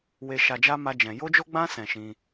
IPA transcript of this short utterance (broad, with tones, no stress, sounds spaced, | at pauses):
w e˧ ʃ a˧ d͡ʒ a˦ m a˦ d͡ʒ ɛ̃˧ j o˦ d͡ʒ o˦ ɡ͡b ã˦ s ɛ̃˧ ʃ ĩ˧